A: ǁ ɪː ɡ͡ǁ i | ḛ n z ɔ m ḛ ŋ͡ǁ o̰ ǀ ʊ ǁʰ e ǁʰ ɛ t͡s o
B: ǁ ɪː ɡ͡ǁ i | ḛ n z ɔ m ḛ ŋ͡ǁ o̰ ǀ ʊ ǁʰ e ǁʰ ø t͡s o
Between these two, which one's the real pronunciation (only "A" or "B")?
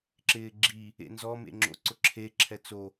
A